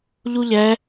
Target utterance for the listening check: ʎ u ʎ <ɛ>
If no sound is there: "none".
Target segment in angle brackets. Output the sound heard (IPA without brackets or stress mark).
ɛ